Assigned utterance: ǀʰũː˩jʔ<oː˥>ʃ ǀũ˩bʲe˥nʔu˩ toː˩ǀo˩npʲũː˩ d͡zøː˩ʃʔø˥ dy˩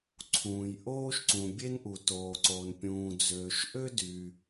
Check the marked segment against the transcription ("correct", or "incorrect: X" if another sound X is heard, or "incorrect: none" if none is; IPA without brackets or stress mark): correct